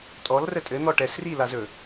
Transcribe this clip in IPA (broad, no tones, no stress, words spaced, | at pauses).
tʼɔl rətʼɘ n̪ɔʈɛs rilazɵ